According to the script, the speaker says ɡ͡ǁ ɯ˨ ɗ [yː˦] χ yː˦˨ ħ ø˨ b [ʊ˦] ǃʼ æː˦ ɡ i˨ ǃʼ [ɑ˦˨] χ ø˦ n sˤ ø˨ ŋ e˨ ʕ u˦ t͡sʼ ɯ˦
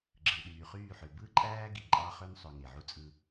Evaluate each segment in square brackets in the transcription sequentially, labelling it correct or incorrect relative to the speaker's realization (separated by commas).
incorrect, incorrect, incorrect